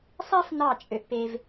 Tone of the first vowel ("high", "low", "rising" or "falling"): high